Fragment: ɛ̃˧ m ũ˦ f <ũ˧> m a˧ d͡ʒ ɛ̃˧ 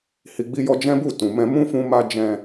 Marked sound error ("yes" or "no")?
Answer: no